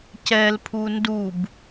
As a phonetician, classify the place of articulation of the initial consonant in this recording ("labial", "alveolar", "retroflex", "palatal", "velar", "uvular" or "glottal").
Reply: palatal